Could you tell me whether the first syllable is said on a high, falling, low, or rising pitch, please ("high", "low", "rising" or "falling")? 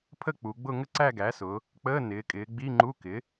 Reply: falling